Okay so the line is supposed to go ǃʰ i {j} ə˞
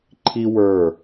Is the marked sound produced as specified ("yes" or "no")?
no